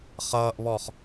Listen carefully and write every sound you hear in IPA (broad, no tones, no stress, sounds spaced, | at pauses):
χ ʌː ʔ β ɔ χ